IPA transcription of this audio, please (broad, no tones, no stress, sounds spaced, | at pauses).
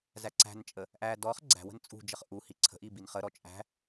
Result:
z æ ǀ æ̤ n t͡ʃʼ ə | ʔ æ d ɔ χ ɡ͡ǀ æ̤ w ə̤ n t͡sʼ ṳ d͡ʒ ə χ ʔ u h i ǀʰ ə̤ ʔ i b i n χ ə ɾ ɔ t͡ʃʼ æ̤